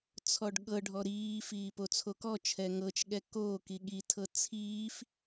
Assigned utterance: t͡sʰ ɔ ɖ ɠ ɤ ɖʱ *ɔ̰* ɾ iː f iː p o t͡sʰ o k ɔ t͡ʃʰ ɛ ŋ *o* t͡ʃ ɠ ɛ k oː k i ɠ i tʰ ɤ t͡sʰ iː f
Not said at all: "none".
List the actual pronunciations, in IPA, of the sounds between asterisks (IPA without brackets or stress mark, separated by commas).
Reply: ɔ, ɤ